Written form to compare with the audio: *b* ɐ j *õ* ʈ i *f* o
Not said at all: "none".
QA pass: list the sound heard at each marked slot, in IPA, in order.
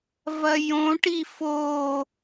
v, õ, f

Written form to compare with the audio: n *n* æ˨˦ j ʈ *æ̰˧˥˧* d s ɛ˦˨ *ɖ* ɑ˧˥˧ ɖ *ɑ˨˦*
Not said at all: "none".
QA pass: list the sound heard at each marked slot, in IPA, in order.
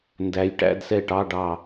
d, æ̰˧˥˧, ʈ, ɑ˦˨

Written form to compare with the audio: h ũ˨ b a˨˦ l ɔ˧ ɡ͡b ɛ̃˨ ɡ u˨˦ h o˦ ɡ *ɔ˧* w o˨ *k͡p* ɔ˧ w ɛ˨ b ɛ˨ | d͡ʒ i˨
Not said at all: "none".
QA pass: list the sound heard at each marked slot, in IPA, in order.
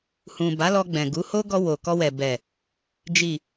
ɔ˧, k

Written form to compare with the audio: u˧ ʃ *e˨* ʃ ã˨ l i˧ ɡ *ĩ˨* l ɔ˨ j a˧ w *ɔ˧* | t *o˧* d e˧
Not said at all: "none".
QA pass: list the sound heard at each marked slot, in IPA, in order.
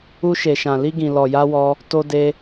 e˨, ĩ˨, ɔ˧, o˧

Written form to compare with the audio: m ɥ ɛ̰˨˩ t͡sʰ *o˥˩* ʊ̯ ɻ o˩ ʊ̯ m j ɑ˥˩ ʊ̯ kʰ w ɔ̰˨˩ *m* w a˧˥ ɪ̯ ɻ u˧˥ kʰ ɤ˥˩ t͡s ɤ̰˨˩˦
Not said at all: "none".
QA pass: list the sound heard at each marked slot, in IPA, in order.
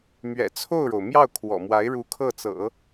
o˥˩, m

